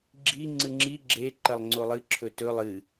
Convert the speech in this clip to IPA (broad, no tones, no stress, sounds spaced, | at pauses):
ɡ͡ǁ i ŋ͡ǀ ɨ ŋ͡ǁ i ɡ͡ǁ e ǃ ɐ lˠ ŋ͡ǀ o lˠ ɨ ǁʰ ɵ t ɵ lˠ ɨ